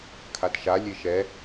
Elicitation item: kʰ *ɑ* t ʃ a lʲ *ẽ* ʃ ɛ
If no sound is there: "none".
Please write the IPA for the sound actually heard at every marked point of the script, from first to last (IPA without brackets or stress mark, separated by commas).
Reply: a, e